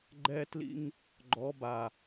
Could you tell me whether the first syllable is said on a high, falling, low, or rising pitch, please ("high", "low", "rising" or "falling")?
high